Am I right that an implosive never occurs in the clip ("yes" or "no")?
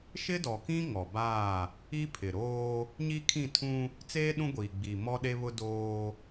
no